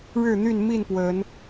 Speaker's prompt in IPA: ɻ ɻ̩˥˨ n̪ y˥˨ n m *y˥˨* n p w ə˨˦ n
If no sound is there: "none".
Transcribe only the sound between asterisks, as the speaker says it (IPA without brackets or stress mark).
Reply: i˥˨